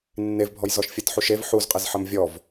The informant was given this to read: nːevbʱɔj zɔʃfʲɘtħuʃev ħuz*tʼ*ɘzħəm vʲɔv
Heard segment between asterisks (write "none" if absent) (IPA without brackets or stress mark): qʼ